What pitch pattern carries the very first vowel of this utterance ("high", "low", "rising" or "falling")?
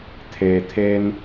low